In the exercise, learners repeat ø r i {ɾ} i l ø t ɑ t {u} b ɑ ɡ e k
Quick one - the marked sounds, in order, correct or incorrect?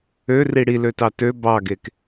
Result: incorrect: ɽ, incorrect: ø

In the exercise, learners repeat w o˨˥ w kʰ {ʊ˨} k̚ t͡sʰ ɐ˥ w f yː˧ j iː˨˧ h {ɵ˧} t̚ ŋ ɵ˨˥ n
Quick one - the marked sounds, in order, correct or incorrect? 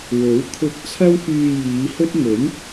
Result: incorrect: ʊ˧, incorrect: ɵ˥

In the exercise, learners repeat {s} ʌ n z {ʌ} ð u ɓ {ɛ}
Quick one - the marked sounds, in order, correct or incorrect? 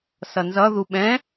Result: correct, correct, incorrect: ɛ̃

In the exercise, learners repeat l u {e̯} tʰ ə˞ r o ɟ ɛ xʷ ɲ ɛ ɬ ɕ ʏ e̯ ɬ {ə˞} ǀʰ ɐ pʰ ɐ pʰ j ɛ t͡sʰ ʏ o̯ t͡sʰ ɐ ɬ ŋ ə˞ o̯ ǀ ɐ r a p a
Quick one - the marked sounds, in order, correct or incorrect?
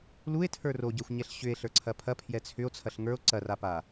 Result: correct, correct

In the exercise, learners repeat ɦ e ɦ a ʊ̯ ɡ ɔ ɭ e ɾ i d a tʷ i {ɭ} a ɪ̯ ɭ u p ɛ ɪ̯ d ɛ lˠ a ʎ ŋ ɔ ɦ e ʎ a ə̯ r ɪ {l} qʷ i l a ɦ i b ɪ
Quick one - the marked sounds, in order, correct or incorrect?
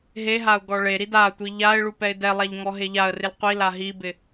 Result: incorrect: ʎ, correct

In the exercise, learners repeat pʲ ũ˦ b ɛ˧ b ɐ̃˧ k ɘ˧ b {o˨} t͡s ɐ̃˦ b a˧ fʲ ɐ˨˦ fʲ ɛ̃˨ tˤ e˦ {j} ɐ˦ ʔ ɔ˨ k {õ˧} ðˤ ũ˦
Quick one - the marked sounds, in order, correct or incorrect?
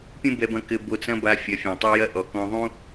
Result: incorrect: o˧, correct, incorrect: ɔ̃˧

